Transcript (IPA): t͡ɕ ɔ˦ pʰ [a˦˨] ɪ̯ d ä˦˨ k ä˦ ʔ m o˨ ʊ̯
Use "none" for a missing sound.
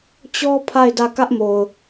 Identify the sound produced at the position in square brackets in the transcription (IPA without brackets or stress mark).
a˦˨